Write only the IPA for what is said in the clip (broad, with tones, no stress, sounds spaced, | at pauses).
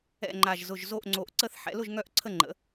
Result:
ɛ̰˥˩ ŋ͡ǃ a˧˩ ʒ z ʊ˧˩ ʒ z o˥˩ ʔ ŋ͡ǀ o˧˩ ʔ ǀ ə˥˧ θ ħ ɛ̰˩˥ l ʊ˥˩ ʒ ŋ œ˥˩ ʔ ǀʰ ə˥˩ ŋ͡ǃ ə̰˩˥